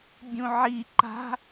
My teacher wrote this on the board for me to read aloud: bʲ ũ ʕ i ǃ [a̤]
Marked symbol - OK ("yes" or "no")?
yes